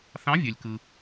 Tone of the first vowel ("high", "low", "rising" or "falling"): rising